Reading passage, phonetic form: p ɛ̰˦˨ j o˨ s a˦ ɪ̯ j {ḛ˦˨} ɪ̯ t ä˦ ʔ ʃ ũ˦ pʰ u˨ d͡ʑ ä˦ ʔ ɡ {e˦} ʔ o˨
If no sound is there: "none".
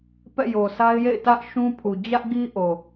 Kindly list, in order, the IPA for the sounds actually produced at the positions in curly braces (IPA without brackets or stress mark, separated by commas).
ḛ˦˨, i˦